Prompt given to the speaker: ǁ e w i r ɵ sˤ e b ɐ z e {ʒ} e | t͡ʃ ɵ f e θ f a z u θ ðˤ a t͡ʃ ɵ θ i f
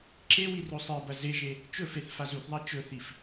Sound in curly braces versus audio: correct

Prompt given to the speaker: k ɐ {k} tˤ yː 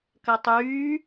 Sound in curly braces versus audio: incorrect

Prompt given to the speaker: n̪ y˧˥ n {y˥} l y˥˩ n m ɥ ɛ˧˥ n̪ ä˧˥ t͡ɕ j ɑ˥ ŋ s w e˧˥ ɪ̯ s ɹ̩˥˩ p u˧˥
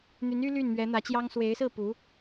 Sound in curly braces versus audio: correct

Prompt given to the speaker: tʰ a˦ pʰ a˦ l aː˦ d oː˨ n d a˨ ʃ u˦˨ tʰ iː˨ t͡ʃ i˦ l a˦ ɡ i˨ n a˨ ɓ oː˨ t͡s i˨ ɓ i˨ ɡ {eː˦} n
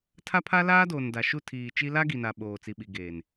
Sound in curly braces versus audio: incorrect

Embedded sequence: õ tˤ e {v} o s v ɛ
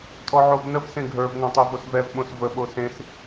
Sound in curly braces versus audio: correct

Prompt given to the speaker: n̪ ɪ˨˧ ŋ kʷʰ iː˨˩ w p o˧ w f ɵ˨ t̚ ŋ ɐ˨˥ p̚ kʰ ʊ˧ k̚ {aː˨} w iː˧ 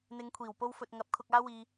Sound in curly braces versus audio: incorrect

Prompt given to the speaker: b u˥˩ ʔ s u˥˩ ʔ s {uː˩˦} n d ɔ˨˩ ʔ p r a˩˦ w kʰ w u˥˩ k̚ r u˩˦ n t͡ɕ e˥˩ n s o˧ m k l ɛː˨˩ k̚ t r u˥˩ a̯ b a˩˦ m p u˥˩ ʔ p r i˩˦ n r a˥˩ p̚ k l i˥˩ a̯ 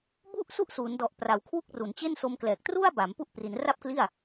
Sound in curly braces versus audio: correct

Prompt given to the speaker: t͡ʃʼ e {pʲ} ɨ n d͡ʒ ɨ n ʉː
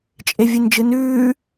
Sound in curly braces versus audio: incorrect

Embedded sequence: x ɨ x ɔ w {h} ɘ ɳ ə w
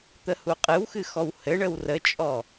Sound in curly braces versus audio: correct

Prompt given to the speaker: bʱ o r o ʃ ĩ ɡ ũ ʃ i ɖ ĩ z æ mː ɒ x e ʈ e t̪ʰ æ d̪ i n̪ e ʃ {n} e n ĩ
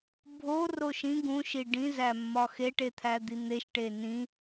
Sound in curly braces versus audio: incorrect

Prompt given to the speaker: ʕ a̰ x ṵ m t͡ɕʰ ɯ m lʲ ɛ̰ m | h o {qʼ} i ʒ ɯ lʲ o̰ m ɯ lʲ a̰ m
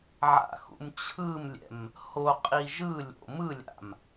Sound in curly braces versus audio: correct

